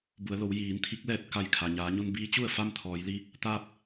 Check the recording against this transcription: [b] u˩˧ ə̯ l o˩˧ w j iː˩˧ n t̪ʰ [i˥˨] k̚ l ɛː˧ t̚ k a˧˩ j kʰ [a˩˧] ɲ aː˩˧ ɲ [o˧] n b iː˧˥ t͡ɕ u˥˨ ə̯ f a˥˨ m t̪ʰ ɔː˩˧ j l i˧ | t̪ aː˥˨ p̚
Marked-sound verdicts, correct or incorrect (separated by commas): correct, incorrect, incorrect, correct